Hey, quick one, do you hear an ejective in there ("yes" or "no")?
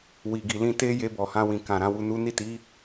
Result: no